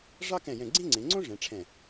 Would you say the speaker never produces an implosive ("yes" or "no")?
yes